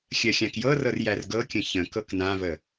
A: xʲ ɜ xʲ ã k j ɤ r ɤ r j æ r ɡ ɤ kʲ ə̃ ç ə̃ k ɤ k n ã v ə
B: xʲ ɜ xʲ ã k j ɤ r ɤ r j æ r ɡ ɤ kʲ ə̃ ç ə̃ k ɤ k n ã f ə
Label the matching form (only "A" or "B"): A